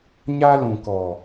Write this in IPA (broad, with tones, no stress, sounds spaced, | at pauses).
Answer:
ɲ a˦ l ũ˨ k ɔ˨